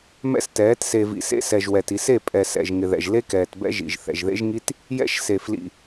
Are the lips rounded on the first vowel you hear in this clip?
no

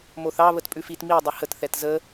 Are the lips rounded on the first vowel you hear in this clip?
yes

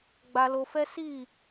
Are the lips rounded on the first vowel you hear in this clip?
no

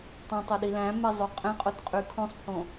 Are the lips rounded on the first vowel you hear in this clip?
yes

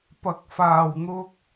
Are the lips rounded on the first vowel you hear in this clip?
no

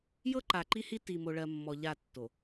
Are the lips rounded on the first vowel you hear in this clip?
no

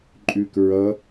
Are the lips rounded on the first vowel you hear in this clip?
yes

